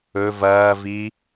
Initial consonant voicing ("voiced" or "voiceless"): voiced